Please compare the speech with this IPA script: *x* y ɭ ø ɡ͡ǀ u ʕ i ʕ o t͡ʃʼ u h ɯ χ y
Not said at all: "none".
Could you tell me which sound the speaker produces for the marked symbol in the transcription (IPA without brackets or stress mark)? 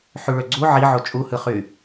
ħ